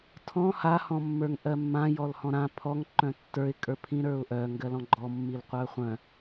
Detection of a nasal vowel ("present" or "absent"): present